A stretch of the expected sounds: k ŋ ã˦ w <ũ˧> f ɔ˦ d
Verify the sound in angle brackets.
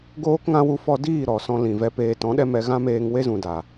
incorrect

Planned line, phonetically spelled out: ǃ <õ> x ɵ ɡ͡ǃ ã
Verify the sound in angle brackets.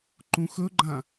incorrect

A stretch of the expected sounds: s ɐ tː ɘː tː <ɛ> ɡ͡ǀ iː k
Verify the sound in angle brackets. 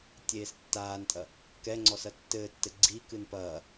incorrect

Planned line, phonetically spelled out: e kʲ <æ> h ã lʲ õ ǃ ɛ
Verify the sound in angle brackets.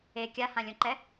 incorrect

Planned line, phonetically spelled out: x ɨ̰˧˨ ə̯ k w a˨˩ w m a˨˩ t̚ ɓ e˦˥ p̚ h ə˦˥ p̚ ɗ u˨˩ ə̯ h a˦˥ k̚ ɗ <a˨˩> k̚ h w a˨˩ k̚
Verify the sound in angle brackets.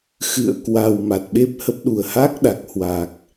correct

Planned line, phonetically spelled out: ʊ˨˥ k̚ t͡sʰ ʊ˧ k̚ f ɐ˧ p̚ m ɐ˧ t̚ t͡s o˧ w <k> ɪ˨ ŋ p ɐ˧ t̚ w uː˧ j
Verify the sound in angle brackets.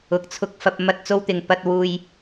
incorrect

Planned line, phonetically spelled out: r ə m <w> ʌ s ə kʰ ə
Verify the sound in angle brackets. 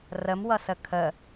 correct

